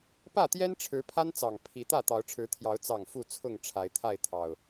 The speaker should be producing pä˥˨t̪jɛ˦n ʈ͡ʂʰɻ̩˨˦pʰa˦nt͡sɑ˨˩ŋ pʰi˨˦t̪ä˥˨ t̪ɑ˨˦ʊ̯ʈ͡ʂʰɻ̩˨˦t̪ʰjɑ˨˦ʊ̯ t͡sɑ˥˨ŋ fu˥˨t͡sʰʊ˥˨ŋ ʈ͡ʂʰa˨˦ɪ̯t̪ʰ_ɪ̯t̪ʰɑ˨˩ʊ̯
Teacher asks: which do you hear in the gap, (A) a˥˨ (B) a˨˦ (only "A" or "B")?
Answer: A